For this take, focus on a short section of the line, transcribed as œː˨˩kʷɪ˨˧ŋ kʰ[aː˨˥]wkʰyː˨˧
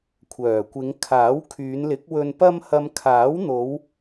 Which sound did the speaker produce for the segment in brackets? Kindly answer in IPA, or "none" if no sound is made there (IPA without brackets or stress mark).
aː˨˥